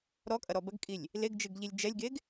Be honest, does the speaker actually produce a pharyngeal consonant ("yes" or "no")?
no